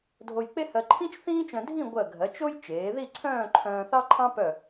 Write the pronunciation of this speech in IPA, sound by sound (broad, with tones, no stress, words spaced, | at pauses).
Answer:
dʱo˧jk͡pe˥hɜ˧ ǃʰĩ˥t͡ʃθĩː˥t͡ʃœ̃˧dʱĩ˥˧ ɡʷɜ˧˩ɡʱɜ˩˧t͡ʃo˥j t͡ʃeː˩˧ði˥˧ ǀʰœ̃ː˥˧ǃʰœ̃ː˧θɑ˥ǃʰɑ̃˥ pœ˧˩